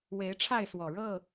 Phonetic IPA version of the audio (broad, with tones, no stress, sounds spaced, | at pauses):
w e˨˦ ɪ̯ ʈ͡ʂʰ a˥˨ ɪ̯ s w ɔ˨˩ ɻ ɤ˥˨